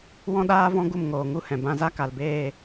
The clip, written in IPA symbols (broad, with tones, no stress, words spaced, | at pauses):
wɔ̃˦ɗaː˦vɔ̃˦ ɡu˦˨mŋoː˨ŋu˦hɛ̃˨ bã˧za˦ka˨lbeː˦˨